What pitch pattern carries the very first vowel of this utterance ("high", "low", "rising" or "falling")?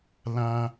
high